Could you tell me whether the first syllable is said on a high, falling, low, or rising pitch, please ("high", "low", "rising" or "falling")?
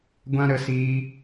high